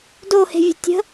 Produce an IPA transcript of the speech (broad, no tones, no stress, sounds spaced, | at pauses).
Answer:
d o h e̤ vʲ ə̤ tʲ ə̤